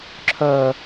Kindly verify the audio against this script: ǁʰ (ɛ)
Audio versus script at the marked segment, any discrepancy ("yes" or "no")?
yes